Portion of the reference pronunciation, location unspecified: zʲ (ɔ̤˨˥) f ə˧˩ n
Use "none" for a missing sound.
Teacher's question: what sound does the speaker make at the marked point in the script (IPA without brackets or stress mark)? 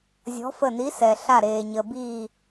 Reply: ɔ̤˨˥